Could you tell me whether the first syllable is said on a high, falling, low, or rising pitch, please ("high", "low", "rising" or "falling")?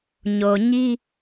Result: low